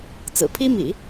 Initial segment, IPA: t͡s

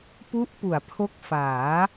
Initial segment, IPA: p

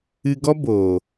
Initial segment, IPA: ɨ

